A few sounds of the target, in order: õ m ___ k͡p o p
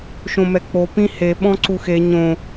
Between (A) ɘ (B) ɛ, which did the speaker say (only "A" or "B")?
B